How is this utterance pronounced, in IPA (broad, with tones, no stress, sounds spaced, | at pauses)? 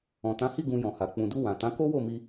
ɔ̃˨ t ã˨˦ h i˦˨ ɡ ũ˧ j ɔ̃˨ h a˨ k͡p ũ˨ d u˧ w ã˨ t ã˨˦ k o˦ w o˦˨ m i˧